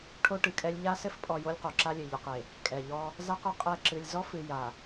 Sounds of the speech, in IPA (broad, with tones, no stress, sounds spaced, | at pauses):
ʈʰ o˦ ʈ ɨ˨ kʼ ɛ˦ lʲ ʎ a˦ s ɘ˦ f pʼ ɔ˨ j o˦ lʲ q o˨ ǁ a˦ lʲ ɘ˨ ʎ ɨ˨ q e˨ | kʼ ɛ˨ ʎ ɔ˦ | z a˦ q ɘ˨ qʼ ɛ˦˨ ǁ ɨ˨ lʲ z ɔ˦ f ɨ˨ j a˨